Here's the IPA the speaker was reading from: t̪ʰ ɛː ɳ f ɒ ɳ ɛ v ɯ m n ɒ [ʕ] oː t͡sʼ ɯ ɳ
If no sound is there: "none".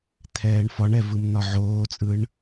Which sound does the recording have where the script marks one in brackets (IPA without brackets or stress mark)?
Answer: ʕ